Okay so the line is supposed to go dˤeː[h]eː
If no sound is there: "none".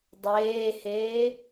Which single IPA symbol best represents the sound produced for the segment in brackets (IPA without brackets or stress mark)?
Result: h